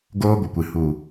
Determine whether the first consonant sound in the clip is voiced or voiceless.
voiced